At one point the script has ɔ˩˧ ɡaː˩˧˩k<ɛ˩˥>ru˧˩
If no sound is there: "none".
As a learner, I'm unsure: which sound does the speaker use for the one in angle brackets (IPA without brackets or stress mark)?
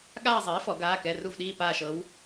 ɛ˩˧˩